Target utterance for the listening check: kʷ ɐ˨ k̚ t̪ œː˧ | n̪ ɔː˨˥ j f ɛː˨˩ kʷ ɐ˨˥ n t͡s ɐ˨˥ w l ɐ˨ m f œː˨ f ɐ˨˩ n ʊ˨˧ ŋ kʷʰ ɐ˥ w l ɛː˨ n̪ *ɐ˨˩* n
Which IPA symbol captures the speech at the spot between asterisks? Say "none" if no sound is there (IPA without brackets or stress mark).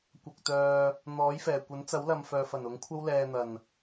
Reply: ɐ˨˩